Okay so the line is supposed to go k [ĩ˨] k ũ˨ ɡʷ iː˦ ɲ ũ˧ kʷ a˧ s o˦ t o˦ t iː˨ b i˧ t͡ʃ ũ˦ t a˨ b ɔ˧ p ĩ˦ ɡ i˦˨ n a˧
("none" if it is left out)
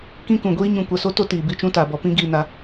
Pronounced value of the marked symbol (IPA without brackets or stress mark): ĩ˦